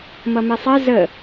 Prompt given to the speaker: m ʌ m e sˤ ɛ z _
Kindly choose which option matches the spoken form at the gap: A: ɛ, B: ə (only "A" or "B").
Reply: B